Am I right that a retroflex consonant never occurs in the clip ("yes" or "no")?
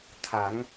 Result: yes